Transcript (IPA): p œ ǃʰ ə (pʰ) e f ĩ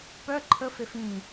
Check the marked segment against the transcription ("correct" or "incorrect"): incorrect